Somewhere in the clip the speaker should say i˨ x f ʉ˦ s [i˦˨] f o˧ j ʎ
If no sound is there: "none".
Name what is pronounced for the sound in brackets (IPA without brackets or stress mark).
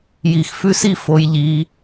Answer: i˦˨